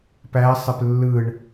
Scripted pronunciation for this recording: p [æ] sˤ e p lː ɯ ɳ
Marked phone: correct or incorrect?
correct